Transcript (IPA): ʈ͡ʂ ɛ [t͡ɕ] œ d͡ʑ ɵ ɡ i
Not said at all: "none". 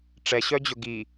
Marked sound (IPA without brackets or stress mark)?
ɕ